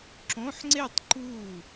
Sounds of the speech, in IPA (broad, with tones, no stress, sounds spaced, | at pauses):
ǁ õ˧˥˧ ħ ŋ͡ǀ e˥˧ tˤ ǃ u˥˩